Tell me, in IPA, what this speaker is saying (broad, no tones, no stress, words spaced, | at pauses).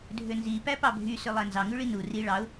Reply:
dʱønzi pæpɑbʱy sølˠænzɑ ŋʉɭinu ri ɭɑʊ̯